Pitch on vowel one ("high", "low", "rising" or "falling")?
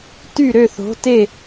falling